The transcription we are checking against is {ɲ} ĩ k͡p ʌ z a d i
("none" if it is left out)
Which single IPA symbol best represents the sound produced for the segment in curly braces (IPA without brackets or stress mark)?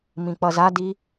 m